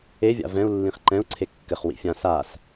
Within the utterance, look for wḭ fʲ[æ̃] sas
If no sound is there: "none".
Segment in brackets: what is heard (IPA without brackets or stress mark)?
ã